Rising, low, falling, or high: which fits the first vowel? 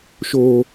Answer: low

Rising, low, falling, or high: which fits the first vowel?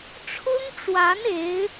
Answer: high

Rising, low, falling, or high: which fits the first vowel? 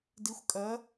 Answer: rising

